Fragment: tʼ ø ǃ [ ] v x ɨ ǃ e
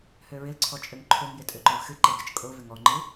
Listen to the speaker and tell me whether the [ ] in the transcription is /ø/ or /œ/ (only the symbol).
œ